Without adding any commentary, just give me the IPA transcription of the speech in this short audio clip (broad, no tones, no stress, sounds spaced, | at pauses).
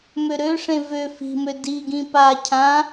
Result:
m ø ɾ ø ʂ ẽ v ø f i̤ m ø d i ɡ ĩ p a cʰ ã